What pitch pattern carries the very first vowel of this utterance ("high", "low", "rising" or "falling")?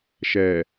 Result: low